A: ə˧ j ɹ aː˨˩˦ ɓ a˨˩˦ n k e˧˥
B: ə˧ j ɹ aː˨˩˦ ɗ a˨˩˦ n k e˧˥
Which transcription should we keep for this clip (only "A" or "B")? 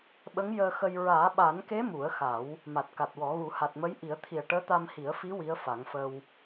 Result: A